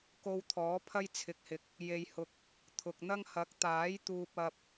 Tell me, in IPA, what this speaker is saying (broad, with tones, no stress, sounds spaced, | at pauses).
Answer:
k o˧ w t̪ʰ ɔː˨˥ pʰ ɐ˥ j t͡sʰ ɪ˨˥ k̚ h ɪ˨ k̚ | j e˨ j h ʊ˨ k̚ | t̪ʰ ʊ˨ k̚ n̪ ɐ˥ ŋ h ɐ˨˥ k̚ t̪ aː˨˥ j t̪ uː˧ p̚ ɐ˧ p̚